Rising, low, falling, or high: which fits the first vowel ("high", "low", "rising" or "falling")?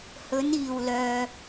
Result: rising